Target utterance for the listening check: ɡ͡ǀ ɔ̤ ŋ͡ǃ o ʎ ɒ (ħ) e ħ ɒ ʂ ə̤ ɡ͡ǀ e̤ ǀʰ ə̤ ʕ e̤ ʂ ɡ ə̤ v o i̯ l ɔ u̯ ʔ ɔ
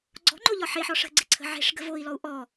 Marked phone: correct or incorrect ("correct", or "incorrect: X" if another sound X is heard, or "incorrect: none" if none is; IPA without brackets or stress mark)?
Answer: correct